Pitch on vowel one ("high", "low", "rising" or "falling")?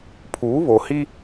rising